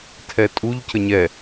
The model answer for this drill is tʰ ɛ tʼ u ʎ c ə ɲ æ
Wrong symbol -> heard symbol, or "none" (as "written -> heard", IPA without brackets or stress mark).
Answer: æ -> ɛ